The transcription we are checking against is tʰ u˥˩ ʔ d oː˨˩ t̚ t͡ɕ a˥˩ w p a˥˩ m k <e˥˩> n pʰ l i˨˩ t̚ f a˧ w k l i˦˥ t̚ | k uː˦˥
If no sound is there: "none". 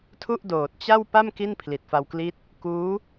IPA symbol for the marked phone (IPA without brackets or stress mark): i˥˩